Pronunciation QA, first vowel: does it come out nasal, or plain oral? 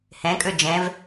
nasal